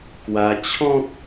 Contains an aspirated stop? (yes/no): yes